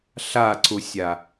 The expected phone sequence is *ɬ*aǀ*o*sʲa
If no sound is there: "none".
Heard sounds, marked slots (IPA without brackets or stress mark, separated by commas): ɬ, u